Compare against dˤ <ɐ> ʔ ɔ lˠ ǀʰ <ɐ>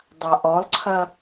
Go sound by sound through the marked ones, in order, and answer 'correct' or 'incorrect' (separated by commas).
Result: incorrect, correct